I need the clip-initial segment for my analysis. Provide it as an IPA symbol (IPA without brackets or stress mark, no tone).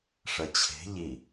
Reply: ʂ